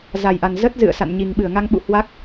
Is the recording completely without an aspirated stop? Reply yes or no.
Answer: yes